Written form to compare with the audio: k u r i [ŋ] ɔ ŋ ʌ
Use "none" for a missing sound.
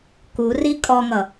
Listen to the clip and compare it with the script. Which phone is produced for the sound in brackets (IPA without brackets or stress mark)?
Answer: kʼ